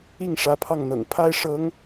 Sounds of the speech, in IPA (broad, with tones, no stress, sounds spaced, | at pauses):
i˥˩ ŋ ʂ ä˧˥ pʰ ɑ˥˩ ŋ n̪ ɤ̰˨˩ ŋ pʰ a˥ ɪ̯ ʂ ɤ˧˥ ŋ